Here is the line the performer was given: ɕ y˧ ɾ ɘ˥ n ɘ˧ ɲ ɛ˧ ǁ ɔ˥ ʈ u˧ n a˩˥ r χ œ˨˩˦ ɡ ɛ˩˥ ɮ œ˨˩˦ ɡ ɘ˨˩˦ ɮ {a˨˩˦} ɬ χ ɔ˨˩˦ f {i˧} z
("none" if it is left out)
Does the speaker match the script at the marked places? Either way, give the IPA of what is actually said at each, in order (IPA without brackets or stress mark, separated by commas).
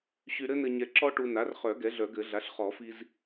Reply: a˩˥, i˧